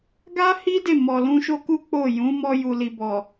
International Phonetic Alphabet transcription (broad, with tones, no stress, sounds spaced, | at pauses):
ɡ a˦ h i˦ d e˦˨ m ɔ˨ l ũ˧ ʃ o˦ k u˦ k͡p o˦˨ j ũ˨˦ m ɔ˧ j u˨ l i˨ b ɔ˨